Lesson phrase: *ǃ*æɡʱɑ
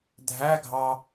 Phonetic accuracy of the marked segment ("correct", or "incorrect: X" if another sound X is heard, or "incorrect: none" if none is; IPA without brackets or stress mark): incorrect: dʱ